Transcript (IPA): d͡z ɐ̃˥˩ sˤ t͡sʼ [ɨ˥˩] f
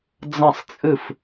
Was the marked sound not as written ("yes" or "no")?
no